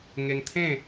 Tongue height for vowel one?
mid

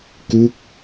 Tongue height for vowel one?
high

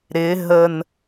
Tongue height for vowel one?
high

